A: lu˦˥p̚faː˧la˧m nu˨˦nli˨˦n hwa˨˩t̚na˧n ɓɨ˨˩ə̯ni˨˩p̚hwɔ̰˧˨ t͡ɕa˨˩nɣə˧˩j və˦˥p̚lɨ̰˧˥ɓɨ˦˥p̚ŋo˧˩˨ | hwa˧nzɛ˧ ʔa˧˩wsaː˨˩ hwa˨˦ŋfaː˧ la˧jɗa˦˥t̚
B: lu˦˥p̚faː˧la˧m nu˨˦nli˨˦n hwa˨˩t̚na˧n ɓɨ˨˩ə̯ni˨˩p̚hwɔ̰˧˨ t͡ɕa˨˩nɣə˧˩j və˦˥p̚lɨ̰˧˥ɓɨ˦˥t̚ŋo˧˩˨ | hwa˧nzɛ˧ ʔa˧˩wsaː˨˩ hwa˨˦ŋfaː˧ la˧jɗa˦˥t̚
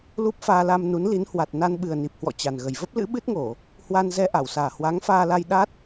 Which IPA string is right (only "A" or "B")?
B